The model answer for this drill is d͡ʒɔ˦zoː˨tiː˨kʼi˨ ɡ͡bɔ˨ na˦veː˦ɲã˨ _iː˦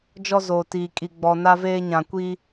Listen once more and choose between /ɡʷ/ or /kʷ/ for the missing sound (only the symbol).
kʷ